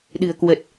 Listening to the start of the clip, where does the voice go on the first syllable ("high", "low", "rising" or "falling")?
low